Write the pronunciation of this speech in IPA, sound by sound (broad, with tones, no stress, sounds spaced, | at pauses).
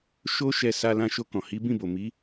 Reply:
ʃ o˦ ʃ ɛ˧ s a˧ l ã˧ ʃ o˧ k ɔ̃˨ h i˨˦ b ĩ˦˨ b o˨ m i˨˦